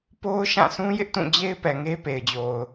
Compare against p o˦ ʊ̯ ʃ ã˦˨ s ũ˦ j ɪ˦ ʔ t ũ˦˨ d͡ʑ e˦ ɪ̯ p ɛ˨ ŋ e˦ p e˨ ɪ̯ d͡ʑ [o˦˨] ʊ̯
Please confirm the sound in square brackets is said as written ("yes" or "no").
no